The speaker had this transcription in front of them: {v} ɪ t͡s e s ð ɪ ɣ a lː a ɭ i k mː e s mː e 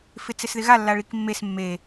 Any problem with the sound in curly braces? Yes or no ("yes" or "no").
yes